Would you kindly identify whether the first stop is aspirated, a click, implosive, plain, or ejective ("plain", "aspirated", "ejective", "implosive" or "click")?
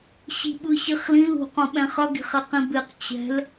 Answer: implosive